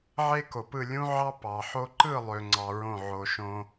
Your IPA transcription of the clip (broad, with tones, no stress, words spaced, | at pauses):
ʕe˦ko˨pɯ˦˨ lʲũ˦ ʕɑ˦ pɑ˨ħo˧ǃɯ˦˨ lˠø˧ŋ͡ǀɑ˧ɹõ˦˨ ʕo˧ʃõ˦